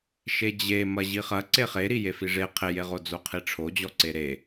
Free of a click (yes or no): no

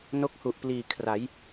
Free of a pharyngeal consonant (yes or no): yes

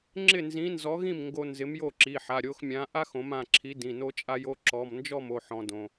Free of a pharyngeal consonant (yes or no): no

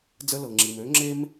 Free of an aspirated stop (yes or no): yes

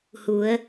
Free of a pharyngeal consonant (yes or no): yes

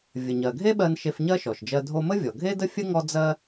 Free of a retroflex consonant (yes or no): yes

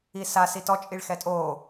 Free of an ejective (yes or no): no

